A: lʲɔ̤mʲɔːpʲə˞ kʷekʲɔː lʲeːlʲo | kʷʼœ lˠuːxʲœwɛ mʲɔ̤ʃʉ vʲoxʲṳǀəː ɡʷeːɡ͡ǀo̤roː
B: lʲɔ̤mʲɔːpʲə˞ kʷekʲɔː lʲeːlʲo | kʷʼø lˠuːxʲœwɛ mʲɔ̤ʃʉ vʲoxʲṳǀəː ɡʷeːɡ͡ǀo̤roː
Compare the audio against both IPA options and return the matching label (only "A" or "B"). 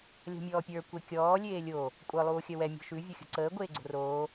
A